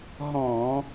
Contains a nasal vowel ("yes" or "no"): yes